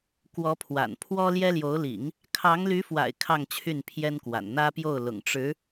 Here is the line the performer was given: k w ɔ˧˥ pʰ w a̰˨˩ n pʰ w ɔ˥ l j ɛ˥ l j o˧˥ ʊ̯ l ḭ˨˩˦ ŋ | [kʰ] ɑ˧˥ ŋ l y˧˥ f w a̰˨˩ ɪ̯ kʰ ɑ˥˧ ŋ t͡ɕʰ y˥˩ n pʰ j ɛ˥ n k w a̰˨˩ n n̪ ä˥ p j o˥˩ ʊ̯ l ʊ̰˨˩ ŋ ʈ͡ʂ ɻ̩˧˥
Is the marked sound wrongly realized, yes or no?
no